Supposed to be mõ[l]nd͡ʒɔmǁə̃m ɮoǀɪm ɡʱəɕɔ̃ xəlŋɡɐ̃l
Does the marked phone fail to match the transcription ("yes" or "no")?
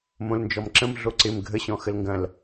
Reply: no